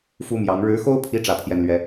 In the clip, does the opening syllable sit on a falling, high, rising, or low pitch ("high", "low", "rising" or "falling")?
high